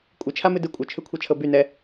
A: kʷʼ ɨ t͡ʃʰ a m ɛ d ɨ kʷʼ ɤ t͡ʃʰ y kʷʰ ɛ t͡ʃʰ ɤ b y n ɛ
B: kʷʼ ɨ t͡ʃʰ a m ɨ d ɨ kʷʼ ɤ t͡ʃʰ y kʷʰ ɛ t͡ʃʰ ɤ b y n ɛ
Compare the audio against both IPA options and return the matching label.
B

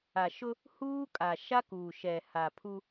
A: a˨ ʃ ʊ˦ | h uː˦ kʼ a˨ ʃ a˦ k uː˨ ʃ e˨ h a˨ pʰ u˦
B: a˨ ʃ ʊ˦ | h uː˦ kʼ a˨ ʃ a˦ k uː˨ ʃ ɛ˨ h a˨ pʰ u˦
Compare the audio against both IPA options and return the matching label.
B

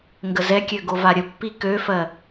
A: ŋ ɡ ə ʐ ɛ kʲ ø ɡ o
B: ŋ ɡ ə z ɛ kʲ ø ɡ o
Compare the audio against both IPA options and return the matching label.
B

